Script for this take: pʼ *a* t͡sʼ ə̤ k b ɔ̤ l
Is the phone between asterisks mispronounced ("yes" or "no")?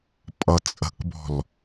yes